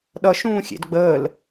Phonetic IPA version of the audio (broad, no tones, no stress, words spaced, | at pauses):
ɗʌʃũː xʲḛdɡ͡bəːl